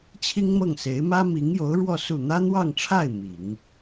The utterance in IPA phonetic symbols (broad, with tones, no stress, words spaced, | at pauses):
t͡ɕʰi˥ŋmɤ˥˩ŋse˧˥ɪ̯ mä˥mi˧˥ŋjo˧˥ʊ̯ɻwɔ˥˧ su˥˩ n̪ä˥n̪wɑ˥˧ŋʈ͡ʂʰa˥˩ɪ̯ mi˨˩˦ŋ